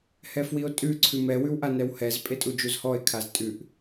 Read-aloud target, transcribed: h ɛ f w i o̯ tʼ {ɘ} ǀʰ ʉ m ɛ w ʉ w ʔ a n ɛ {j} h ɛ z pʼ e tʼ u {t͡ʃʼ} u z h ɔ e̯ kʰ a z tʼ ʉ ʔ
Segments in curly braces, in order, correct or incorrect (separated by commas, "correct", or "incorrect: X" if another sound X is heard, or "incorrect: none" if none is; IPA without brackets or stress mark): incorrect: ʉ, incorrect: w, incorrect: d͡ʒ